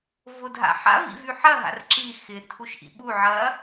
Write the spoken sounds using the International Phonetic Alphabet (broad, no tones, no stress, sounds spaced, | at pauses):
v ʊ dʱ a̰ ħ a̰ v ḭ v y ħ ɐ ɦ a̰ r ǁ i x ɪ tʰ u ʃ ʔ ḭ ɓ u ʕ ɐ